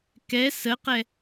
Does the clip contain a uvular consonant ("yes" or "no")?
yes